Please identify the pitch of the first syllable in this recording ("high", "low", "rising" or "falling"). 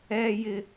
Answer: high